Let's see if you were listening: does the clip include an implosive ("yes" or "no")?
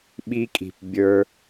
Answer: yes